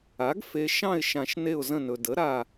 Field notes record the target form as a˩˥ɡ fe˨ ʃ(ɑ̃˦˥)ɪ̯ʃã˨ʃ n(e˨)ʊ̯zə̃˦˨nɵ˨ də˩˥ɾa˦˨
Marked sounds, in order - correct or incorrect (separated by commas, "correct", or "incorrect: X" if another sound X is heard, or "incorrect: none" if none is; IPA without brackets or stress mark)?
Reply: incorrect: ɑ̃˦˨, incorrect: e˦˨